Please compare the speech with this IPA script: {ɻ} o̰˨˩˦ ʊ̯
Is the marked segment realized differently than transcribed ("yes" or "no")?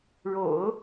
no